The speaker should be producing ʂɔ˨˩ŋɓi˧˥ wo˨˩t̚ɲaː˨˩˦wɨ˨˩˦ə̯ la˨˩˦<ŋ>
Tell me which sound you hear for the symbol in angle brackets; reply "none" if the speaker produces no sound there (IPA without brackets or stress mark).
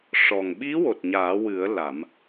m